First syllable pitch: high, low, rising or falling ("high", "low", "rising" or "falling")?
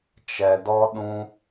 low